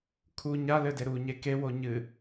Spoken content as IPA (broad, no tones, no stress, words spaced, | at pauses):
kʰu ɲalɘde ɾuɲe kewo ɲɨ